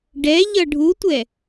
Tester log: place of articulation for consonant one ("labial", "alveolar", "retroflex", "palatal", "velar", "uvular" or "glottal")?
retroflex